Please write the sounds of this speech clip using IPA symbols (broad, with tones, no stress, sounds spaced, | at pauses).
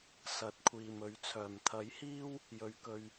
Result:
s ɐ˨˥ t̚ kʷʰ iː˨ m ɵ˨˧ ɥ t͡sʰ œː˨˩ m t̪ʰ ɐ˨˥ j h iː˥ w | j ɵ˨ ɥ k ɵ˨ ɥ